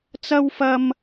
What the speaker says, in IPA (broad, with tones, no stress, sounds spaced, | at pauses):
t͡s ɐ˥ w f ɐ˥ m